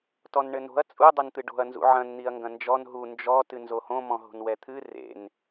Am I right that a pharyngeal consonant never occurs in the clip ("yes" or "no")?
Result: no